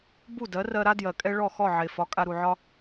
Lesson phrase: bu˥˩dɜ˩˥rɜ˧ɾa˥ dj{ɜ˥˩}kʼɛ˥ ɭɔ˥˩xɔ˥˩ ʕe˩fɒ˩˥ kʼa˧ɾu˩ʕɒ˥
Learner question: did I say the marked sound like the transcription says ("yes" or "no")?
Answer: no